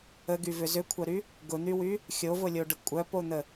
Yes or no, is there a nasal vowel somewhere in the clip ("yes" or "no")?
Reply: no